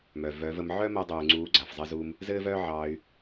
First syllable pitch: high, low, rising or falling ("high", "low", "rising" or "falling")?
low